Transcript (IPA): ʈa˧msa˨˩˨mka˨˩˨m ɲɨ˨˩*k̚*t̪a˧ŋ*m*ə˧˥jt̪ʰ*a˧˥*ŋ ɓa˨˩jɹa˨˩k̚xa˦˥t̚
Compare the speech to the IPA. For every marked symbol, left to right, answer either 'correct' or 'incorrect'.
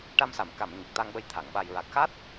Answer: correct, incorrect, incorrect

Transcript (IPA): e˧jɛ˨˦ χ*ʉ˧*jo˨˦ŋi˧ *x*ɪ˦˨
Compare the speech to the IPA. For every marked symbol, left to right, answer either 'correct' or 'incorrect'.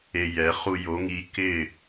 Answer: incorrect, incorrect

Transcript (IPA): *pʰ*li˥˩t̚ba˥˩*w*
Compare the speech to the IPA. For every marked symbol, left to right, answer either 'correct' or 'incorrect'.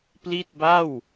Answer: incorrect, correct

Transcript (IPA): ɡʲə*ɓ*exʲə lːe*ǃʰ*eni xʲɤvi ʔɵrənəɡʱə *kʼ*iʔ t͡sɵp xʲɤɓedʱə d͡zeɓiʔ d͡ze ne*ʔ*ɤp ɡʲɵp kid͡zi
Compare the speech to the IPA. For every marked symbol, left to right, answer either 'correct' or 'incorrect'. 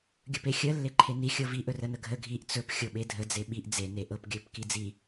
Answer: incorrect, correct, incorrect, correct

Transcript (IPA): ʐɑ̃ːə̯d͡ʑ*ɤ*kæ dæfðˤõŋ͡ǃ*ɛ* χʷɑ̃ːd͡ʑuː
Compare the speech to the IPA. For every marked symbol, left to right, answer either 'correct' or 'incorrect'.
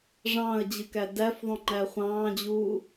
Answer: incorrect, incorrect

